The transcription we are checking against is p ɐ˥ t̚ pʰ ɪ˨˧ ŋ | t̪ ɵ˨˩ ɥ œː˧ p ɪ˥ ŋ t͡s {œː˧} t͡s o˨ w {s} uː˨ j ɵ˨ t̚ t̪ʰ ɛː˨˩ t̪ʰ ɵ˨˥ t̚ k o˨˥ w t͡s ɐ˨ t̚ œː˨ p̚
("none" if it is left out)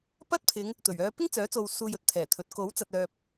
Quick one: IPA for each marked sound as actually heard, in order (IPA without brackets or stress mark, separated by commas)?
œː˨˥, s